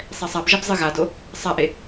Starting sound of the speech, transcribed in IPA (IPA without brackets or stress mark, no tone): sˤ